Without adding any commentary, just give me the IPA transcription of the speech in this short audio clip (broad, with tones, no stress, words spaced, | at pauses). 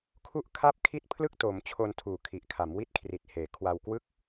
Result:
kʰu˥˩ʔ kʰa˥˩p̚ kʰi˥˩t̚pʰlɯ˥˩k̚toː˩˦mt͡ɕʰo˧n tʰuː˨˩kʰi˨˩ʔkʰa˩˦m wi˦˥t̚kʰri˨˩t̚heː˩˦ kʰwa˧wkwɯ˥˩k̚